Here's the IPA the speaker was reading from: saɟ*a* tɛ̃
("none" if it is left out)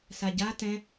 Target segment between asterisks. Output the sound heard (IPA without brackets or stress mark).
a